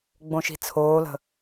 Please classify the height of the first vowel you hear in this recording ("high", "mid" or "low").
mid